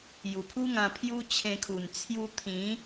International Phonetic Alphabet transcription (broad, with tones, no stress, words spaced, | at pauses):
ju˨˩pʰu˦ŋã˧ pʰju˦t͡ɕʰẽ˧kʰu˨˩n t͡sʰju˧t̪ʰĩ˨˦